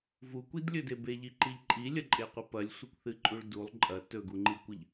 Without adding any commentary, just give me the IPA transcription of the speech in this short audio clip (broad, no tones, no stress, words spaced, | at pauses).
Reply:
vukʷidlʲɵde beʎiǃiʎ ǃʼilʲɐǃʼeqʷɨ pɐlʲsʷɨkʷθɨǃʼuɭ dulˠ ǃʼɐ tɵɡuŋ͡ǃikʷɨʎ